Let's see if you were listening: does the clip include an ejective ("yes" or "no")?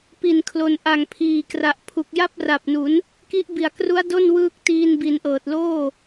no